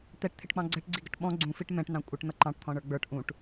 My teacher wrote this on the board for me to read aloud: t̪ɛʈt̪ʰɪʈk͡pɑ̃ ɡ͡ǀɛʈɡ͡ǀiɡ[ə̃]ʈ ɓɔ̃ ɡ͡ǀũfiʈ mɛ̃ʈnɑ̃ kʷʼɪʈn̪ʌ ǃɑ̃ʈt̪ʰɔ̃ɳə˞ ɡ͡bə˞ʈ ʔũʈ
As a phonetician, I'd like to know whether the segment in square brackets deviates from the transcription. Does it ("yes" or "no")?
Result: yes